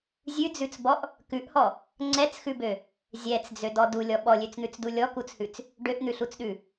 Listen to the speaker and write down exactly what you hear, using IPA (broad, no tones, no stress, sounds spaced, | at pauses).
zʲ ʉ d͡z ʉ t͡s b ɔ ʔ | k ʉ ʔ h ɔ | ŋ͡ǀ ɛ t͡s x ʉ b ø | zʲ ɛ t͡s d͡z ø d ɔ d u lʲ ɔ ɓ ɔ lʲ ø t͡s n̪ ʉ t͡s d u lʲ ɔ k u t͡s h ʉ t͡s | ɖ ø ʔ n̪ ʉ ɬ u t͡s ɗ ʉ